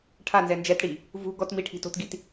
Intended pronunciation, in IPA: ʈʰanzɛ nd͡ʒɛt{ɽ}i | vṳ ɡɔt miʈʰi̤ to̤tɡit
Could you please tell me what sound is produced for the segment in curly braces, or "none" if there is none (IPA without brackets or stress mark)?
ɽ